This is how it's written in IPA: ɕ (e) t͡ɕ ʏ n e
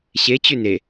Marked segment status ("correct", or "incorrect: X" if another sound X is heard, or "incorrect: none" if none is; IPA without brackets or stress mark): correct